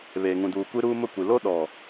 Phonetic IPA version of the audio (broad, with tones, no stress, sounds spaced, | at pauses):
β eː˨ ŋ ũ˨ d uː˨ kʷ i˦ ɾ uː˦ m ʊ˦˨ kʷ i˨ l o˦ ɗ ɔ˨